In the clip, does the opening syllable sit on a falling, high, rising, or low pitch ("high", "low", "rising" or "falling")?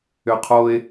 high